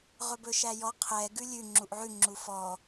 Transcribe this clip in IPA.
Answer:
ʁɵbɵʃæjɔ qʰɛ ɡʉlʲʉ ŋ͡ǁuʔʕʉ ŋ͡ǁufɔ

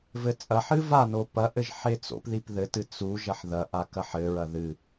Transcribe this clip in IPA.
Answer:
vɘt͡sʼɐħɨ vano pɐʔɘʒ ħet͡so̰pðip ðɘtɨ t͡su ʒɐħðɐʔa kɐħɘɹɐ ðɨ

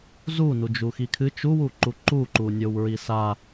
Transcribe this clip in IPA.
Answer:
zunud͡ʒu xikʰɨ t͡ʃuwuǃu ǃuǃunʲow ɹisa

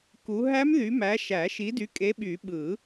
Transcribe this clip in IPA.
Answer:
ku˨˦ ɦæ˦˥mðy˨˦ mæ˨˦ʃæ˨˩˦ʃi˨˦dy˨˦ kʼe˨˦ɓy˨˩˦ ɓɯ˨˩˦

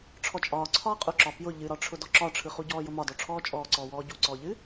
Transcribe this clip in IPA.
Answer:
ʈ͡ʂʰɔt͡ʃʼɒː ǀʰɒːqʼʊǁɒ pjʊ ʎɨɾɒʈ͡ʂʰʊdɔ ǁɒʈ͡ʂʰɯχuɟɔː jʊmɒdɔʈ͡ʂʰɔː t͡ʃʼɔːǀɔːwɔː ɟuǀɔːʎɨ

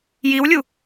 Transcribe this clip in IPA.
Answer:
jiwlʲu

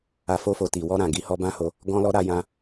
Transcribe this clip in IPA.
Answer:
a˨fo˧fo˨ ti˨ wɔ˧ɾã˨ ɡi˨˦hɔ˧bã˦ho˧ | ɡɔ̃˧lɔ˧ ɾa˧jã˧

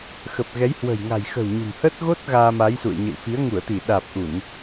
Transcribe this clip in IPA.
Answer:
xə˨˩p̚ ɣɛ˨˦jhwə̤˨˩j ŋa̤˨˩jxə̤˨˩w ɲṳ˨˩mhə˦˥t̚ ɣo˦˥t̚ ɣaː˧ma˨˦jsṵ˧˨ə̯ ɲə̰˧˨wfi˨˦ə̯ ŋu˧˩ə̯t̪i˧˩ ɗaː˨˩p̚ʔu˧˩˨n

